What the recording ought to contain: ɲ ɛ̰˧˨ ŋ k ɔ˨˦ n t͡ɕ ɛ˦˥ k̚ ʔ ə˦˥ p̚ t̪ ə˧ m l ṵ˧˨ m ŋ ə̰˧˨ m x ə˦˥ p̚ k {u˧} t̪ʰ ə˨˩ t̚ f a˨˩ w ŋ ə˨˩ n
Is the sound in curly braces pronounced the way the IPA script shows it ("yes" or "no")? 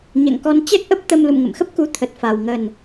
yes